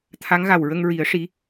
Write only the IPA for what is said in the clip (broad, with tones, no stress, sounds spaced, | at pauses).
t̪ʰ a˧˥ ŋ ɣ a˨˩ w ɹ ə˧ ŋ ɹ i˨˩˦ ə̯ ʂ i˧˥